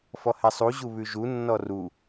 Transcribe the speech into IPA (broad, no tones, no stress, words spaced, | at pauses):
fɔhɛsˤu ʑuβʉʒu nːɔru